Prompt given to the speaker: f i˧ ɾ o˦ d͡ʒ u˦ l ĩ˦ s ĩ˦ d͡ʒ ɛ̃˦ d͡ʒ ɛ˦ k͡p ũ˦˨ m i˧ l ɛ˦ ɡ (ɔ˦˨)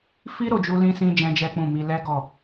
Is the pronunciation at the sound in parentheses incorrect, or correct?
correct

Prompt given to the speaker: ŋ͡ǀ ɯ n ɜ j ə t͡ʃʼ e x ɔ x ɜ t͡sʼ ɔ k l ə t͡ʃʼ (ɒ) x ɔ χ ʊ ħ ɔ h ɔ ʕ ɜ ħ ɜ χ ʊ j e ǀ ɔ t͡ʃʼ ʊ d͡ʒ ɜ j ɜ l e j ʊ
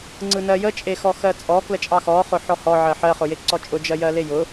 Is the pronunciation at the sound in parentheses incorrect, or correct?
incorrect: ɑ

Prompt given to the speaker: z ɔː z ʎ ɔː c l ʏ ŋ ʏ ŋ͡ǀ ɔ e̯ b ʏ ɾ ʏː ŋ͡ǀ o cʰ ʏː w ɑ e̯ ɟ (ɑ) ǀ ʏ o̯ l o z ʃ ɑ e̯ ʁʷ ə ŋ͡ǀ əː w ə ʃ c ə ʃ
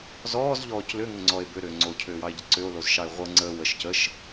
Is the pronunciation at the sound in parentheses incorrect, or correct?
incorrect: ə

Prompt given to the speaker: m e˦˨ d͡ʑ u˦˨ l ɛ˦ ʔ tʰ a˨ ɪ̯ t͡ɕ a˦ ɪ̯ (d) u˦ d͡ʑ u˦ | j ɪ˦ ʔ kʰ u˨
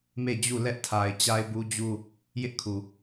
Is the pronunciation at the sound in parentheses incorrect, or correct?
incorrect: b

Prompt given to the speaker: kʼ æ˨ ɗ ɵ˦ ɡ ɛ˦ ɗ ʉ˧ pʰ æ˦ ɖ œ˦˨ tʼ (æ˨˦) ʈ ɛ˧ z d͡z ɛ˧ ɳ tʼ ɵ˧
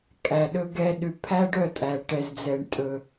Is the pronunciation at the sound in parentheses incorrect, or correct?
incorrect: æ˨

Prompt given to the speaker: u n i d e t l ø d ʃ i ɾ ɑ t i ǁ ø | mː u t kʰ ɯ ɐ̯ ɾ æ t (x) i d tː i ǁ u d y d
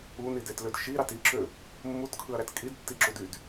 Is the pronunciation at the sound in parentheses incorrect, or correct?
incorrect: kʼ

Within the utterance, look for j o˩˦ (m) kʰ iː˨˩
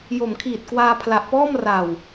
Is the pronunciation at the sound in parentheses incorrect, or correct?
correct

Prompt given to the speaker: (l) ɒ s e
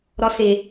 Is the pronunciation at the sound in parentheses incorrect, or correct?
incorrect: ɾ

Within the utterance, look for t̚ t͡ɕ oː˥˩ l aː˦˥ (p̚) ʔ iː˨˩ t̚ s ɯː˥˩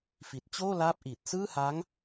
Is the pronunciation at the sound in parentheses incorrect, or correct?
correct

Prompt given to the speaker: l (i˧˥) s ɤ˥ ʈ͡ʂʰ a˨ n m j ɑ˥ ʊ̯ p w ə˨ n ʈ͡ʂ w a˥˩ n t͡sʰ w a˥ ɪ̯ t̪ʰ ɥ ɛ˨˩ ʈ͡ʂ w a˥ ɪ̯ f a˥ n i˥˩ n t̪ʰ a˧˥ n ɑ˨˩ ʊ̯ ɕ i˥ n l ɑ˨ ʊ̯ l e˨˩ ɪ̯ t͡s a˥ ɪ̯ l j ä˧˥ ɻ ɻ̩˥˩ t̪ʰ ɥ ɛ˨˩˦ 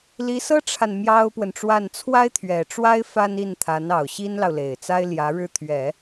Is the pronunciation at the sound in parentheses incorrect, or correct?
correct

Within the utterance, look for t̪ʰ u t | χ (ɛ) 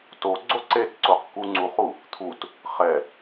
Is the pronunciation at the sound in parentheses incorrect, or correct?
correct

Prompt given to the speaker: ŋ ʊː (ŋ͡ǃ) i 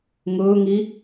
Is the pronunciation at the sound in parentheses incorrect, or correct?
incorrect: ŋ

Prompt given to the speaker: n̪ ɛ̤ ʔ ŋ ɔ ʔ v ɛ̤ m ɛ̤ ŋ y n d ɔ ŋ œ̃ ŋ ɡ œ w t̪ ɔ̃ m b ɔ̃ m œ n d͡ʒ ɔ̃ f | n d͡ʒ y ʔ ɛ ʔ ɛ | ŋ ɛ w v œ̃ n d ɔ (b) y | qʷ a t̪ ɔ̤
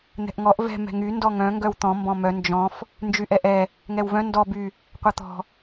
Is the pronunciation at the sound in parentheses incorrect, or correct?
correct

